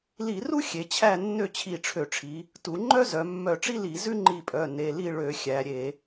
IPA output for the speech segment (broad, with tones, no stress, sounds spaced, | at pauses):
l i˧˩˧ r u˥ xʲ e˩˧ t͡ɕʰ æ˥˨ nː ø˥˨ t͡ɕʰ i˧˩ ʈ͡ʂʰ ø˧˩˧ ʈ͡ʂʰ i˩˧ | t u˩˧ ŋ͡ǃ œ˥ z œ˩˧ mː œ˧˩ ʈ͡ʂ i˥ l i˧˩˧ z ʉ˥ ŋ͡ǃ i˧˩ pʼ œ˩˧˩ n e˩˧˩ l i˥˨ ɭ ø˧˩˧ xʲ æ˩˧ ɾʲ e˧˩˧